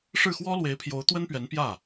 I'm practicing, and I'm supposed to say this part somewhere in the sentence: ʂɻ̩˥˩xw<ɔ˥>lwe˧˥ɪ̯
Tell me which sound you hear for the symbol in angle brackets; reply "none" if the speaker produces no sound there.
ɔ˥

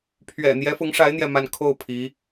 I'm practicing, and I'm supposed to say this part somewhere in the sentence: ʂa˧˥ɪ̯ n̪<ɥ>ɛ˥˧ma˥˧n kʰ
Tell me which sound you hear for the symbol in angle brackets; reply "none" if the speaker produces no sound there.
j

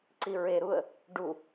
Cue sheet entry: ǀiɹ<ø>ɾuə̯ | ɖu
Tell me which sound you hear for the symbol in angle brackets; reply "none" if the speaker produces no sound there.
e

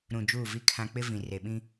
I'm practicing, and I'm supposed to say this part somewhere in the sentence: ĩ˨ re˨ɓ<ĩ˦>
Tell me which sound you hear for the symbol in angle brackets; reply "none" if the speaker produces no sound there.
ĩ˦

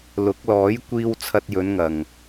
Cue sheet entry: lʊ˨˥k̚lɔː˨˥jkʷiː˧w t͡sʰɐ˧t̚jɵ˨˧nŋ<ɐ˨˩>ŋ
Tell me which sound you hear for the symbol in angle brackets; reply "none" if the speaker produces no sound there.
ɐ˨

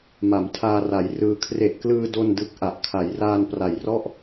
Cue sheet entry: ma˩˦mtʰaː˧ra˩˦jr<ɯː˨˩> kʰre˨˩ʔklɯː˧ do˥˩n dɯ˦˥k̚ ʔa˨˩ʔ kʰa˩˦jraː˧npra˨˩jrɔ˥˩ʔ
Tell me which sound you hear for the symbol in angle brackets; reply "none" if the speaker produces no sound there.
ɯː˧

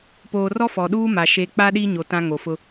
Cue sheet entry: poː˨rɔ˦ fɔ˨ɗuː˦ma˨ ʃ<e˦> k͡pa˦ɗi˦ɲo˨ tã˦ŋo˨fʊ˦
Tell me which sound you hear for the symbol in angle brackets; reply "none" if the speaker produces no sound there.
e˦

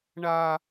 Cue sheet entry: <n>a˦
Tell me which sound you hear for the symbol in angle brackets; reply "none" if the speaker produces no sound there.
ɳ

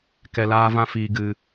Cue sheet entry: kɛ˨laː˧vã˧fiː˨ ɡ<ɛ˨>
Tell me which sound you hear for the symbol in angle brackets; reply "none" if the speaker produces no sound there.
ɨ˨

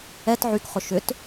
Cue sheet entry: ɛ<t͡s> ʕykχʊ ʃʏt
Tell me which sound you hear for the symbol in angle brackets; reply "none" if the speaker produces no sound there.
t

